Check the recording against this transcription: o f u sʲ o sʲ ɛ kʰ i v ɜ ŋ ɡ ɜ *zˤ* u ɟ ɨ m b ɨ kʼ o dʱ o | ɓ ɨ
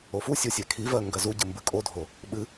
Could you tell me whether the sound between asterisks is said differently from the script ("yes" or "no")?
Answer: yes